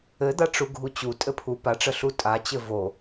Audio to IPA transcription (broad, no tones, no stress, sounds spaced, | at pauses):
ɘ d̪ a ʈ͡ʂ u ɡʱ u t͡ɕ u tʼ ɘ pʰ u p a ʈ͡ʂ ə ɬ u tʼ a t͡ɕ ɘ v o